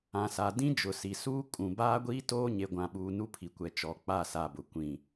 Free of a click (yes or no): yes